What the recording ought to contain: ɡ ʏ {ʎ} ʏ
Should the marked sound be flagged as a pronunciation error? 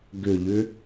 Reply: no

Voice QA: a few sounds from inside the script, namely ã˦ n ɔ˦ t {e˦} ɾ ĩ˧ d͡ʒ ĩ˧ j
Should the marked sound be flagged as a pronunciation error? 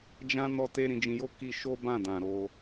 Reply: no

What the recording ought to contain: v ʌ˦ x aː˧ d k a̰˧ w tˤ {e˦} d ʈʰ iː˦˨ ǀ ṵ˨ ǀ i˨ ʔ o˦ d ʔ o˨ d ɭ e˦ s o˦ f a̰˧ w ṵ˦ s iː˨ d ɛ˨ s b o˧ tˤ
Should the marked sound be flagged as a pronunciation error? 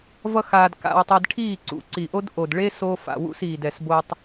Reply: yes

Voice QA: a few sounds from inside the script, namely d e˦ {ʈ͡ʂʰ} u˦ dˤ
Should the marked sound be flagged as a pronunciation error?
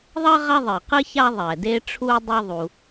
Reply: no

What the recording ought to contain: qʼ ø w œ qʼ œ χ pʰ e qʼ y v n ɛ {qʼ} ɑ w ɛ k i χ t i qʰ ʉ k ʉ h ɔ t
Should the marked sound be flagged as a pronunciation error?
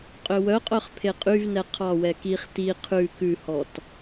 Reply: yes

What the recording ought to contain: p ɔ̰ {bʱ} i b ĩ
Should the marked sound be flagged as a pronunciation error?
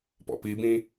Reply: yes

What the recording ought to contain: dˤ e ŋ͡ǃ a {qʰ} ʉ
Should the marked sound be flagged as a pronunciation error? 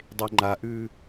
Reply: yes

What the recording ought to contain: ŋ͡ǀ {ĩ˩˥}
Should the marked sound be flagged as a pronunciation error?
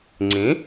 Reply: no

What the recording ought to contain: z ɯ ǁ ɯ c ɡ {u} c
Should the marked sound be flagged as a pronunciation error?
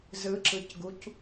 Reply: no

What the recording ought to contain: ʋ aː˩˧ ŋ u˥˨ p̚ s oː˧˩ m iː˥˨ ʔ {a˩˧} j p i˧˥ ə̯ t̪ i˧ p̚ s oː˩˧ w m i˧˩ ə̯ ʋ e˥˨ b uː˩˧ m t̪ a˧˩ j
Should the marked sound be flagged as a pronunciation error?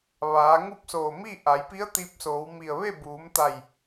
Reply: no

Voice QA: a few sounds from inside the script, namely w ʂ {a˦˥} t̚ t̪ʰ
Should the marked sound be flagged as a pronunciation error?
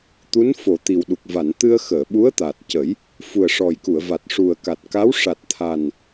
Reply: yes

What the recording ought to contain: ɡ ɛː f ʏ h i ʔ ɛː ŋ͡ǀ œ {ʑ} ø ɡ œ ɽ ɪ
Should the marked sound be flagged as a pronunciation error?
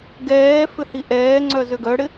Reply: yes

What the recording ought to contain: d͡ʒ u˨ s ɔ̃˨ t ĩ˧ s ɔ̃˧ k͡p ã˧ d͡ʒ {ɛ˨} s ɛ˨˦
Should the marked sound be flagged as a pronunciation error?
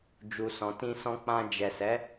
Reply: no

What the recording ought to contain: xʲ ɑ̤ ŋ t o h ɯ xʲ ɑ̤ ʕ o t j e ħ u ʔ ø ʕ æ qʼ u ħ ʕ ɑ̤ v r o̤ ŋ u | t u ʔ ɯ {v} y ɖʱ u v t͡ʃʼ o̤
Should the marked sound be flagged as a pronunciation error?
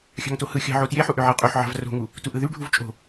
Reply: yes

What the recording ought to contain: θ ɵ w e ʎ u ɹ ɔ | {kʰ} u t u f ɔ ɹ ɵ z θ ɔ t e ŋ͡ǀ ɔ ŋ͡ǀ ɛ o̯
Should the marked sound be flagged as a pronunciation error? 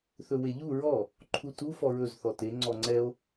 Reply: yes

